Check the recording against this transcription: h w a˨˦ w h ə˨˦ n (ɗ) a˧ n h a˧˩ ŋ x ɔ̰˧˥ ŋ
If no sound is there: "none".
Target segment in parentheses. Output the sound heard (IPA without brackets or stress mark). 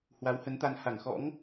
t̪